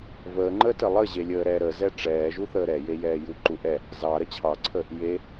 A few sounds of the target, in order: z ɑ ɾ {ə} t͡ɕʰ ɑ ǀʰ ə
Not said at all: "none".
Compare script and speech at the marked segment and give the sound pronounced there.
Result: ə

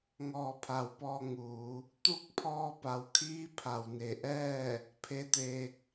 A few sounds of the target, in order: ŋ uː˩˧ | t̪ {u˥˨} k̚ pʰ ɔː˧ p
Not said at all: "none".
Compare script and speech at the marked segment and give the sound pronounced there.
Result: u˥˨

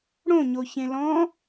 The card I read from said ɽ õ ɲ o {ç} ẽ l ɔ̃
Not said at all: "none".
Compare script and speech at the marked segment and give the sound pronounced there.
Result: ç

